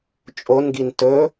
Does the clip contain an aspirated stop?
no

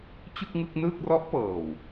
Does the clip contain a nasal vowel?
no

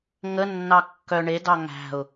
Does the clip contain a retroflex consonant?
yes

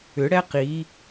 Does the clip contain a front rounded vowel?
yes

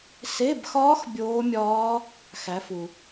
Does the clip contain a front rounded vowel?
no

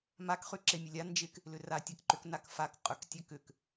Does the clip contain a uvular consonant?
yes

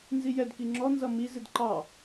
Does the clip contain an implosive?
no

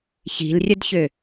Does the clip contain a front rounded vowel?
yes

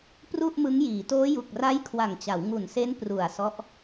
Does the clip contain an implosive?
no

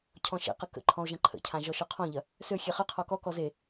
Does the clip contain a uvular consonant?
yes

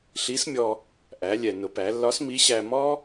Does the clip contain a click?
no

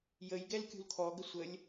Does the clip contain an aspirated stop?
yes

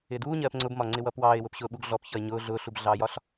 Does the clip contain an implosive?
yes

